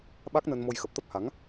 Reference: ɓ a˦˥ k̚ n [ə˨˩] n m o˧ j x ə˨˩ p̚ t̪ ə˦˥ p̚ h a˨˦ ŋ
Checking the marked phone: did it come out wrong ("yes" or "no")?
yes